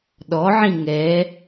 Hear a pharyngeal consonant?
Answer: yes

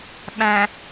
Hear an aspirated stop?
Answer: no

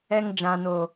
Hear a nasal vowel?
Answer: yes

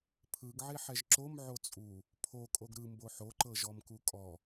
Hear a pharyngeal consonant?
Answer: yes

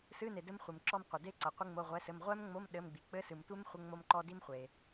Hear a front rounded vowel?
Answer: no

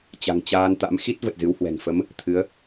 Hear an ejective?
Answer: no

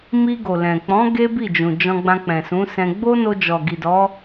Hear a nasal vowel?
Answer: yes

